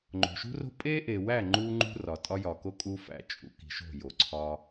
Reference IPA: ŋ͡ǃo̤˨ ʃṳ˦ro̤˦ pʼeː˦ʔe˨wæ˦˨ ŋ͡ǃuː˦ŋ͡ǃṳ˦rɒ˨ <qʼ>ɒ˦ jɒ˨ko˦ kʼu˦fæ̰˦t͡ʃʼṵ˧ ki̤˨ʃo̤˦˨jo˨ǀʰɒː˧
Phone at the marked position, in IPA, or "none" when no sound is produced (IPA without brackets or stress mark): tʼ